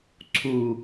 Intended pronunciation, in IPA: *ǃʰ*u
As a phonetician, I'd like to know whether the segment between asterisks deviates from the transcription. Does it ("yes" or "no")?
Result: yes